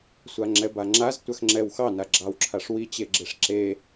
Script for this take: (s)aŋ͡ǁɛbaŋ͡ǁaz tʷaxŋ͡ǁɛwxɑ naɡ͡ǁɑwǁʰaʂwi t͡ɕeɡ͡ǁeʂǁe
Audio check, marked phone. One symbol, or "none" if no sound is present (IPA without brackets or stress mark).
sʷ